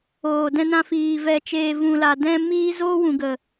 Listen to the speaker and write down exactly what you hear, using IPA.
oː˨ d ɛ̃˧ n ã˧ f iː˨ v ɛ˨ t͡ʃ eː˨ v ũ˨ l a˨ d ɛ̃˧ m iː˦ z oː˦ w ũ˨ ɡ ə˨

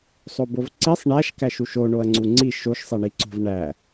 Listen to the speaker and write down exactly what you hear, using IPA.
sˤ o b o v ǀ i sˤ ɳ æ ʃ k æ ʃ u ʃ o ɳ o ɐ̯ ŋ͡ǀ u ŋ͡ǀ i ʃ o ʃ sˤ e ɳ i ǀ o̤ v ɳ æ

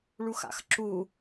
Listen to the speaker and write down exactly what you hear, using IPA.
ɭ u x a̰ x ǁ u

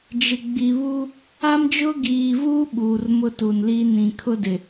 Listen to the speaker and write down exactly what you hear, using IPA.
d͡ʒ ɪ˨ ɡ͡b i˨ β u˦ | a˦ m d͡ʒ ʊ˦ ɡ iː˨ v uː˦ ɓ uː˨ r m ʊ˦ t u˨ n l iː˦ n ĩ˨ kʰ ʊ˦ d ɪ˨

